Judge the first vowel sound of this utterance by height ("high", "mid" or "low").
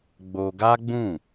mid